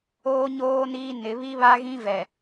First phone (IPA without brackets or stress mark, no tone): oː